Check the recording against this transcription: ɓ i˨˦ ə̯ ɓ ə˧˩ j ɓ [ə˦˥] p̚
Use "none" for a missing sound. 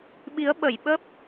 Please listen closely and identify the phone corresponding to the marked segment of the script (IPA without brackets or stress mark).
ə˦˥